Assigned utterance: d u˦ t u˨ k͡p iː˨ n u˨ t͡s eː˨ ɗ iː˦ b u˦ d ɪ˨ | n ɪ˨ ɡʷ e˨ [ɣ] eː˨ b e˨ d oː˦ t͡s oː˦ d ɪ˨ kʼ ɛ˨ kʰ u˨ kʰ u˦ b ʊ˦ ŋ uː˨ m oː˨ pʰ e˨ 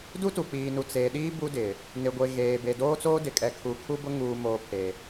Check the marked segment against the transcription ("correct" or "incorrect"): correct